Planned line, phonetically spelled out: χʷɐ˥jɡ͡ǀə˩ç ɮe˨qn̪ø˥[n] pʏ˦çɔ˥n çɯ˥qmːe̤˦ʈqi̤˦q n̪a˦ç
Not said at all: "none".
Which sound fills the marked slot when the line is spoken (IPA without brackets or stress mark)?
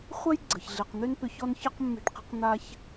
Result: n